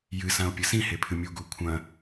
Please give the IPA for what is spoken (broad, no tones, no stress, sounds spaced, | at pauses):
j ɨ s ã o̯ pʲ ɘ s ĩ h e pʰ ɨ mʲ u ɡ u kʷʰ ɐ̃